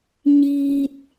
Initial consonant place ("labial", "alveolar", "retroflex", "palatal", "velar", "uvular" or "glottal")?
palatal